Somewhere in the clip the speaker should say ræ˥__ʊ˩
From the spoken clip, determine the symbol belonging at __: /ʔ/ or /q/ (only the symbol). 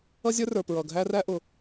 ʔ